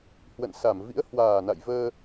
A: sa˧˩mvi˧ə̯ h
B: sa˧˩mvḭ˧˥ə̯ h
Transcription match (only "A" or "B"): B